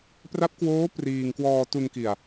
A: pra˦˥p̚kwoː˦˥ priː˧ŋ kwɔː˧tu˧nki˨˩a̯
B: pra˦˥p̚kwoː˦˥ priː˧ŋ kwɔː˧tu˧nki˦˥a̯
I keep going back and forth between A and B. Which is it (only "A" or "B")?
A